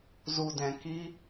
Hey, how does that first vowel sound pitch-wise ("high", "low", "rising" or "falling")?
low